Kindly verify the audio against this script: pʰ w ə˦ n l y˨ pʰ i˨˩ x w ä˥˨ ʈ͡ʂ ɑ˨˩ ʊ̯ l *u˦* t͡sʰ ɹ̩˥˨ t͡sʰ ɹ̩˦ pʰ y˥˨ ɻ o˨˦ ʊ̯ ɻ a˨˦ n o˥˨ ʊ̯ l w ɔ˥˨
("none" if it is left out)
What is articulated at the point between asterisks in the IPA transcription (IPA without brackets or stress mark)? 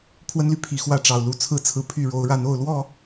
u˦